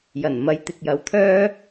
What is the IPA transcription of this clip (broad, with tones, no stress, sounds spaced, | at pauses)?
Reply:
j ɐ˨˩ n m ɐ˨˥ j t̪ ɪ˨ k̚ j ɐ˨˧ w t̪ʰ œː˥